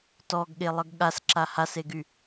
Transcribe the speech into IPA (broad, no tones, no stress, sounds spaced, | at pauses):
t ɔ ɡ ɠ e lˠ ə ɡ ɠ a s ǁ a h a s e ɡ y